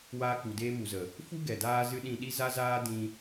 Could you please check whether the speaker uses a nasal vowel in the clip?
yes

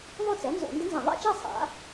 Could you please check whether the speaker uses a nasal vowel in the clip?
yes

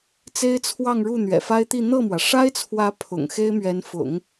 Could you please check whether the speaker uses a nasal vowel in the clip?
no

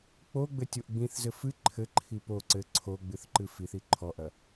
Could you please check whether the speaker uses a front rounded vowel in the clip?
no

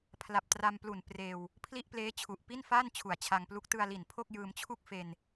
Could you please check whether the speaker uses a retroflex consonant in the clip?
no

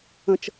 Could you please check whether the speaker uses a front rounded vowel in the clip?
no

